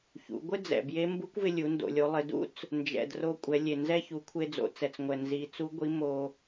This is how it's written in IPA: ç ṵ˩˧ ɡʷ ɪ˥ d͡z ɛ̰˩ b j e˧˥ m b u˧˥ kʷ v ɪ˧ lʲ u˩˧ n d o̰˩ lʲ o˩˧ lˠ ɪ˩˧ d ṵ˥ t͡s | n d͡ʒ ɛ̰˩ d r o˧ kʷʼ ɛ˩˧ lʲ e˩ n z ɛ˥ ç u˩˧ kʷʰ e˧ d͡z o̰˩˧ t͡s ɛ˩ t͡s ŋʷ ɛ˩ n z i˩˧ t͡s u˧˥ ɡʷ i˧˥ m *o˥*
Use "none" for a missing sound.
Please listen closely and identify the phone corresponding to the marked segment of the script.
o˧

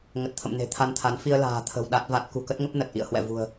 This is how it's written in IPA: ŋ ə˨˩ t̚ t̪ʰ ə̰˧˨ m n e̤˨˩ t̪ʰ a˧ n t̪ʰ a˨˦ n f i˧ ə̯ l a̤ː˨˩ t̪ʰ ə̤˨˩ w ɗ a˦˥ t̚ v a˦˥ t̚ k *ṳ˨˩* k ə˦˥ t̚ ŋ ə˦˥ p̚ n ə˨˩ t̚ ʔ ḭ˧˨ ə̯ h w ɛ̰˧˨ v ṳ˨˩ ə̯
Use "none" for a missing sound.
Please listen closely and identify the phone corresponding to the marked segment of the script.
ṳ˨˩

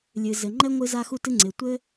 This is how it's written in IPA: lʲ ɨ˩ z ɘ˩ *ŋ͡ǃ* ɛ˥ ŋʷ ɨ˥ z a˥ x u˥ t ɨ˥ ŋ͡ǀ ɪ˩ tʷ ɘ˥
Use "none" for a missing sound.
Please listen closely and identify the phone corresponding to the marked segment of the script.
ŋ͡ǃ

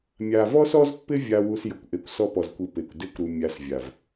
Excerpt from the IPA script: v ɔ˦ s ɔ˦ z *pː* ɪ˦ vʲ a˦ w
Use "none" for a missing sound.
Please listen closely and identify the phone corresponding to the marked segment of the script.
pː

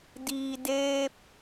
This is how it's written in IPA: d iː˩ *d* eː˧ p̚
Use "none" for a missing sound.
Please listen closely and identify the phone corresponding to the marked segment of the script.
d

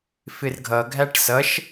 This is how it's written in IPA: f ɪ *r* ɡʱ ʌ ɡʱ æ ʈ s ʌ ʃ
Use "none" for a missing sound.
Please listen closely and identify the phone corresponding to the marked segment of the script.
r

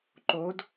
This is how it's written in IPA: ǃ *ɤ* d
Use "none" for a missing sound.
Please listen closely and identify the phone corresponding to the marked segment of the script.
o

